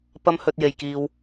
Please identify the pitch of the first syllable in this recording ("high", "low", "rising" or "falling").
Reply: high